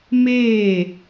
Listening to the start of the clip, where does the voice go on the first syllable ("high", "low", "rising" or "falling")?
falling